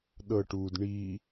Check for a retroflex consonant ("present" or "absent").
present